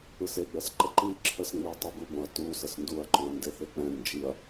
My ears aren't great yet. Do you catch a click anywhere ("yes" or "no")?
yes